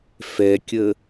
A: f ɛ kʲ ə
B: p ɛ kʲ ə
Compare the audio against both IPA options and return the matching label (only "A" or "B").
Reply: A